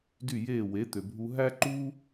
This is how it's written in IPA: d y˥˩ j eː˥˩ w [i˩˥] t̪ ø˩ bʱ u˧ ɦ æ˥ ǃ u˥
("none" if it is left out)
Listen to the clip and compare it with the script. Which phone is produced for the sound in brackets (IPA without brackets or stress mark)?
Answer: e˩˥